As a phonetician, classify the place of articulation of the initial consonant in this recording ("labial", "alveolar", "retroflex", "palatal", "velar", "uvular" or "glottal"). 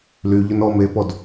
alveolar